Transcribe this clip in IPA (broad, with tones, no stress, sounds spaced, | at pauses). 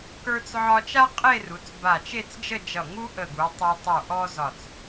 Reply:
k ə˞˧ t͡s ʕ ɒ˧ t͡ʃ a˥ qʼ e˥˧ r u˩˧ t͡s b a˧˩ t͡ʃ e˥˧ t͡s d͡ʒ ə˥˧ d͡ʒ ʌ˧˩ ŋ u˥ ʔ ə˧˩ ɡ u˩˧ tˤ a˧ tˤ ə˞˧˩ ʔ ɔ˥ z ɒ˧˩ t͡s